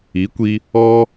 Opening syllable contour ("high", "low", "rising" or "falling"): rising